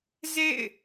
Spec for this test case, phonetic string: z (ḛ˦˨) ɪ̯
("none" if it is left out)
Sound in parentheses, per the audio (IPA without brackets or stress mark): ḛ˦˨